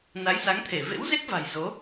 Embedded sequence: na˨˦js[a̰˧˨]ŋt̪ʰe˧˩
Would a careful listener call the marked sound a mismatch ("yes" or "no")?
yes